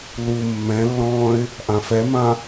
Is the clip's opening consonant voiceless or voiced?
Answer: voiced